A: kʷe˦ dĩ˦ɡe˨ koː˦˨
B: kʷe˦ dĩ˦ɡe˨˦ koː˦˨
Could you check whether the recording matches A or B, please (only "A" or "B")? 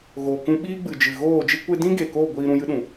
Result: A